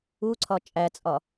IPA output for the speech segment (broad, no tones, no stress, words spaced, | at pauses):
uǀʰɒ t͡ʃʼæt͡sʼɒ